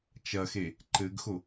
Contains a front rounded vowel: no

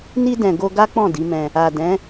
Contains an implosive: no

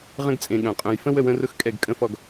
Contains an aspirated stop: no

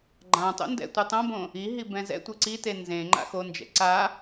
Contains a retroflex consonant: no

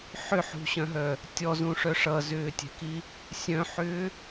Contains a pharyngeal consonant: yes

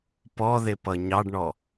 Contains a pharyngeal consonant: no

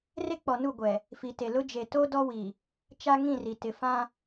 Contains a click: no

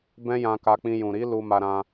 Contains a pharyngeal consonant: no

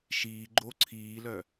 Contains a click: yes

